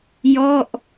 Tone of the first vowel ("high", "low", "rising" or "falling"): falling